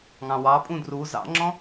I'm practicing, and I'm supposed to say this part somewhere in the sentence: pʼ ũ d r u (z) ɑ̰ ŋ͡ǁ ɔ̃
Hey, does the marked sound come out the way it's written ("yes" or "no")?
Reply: yes